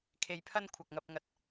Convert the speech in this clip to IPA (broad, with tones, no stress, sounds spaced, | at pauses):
kʰ e˧ j pʰ ɐ˥ n kʷʰ ɐ˨ k̚ ŋ ɐ˧ p̚ ŋ ɐ˧ t̚